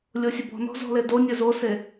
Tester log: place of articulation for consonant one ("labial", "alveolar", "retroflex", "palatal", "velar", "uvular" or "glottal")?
alveolar